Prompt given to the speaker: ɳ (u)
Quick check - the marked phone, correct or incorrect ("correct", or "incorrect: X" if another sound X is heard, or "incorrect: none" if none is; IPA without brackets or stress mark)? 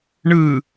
incorrect: ɯ